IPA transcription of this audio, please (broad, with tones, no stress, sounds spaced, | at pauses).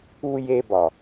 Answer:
u˧ j e˧ b ɒ˨